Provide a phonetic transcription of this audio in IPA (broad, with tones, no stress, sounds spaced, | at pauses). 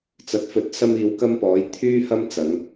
t͡s ɐ˨˥ t̚ f ɵ˨˥ t̚ s ɐ˧ m iː˨˧ w k ɐ˧ m p ɔː˨˧ j t̪ʰ yː˧ h ɐ˧ m t͡s ɐ˨˧ ŋ